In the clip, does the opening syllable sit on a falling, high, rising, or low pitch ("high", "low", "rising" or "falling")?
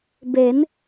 rising